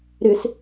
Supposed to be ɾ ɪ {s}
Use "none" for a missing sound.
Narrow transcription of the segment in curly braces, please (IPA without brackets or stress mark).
s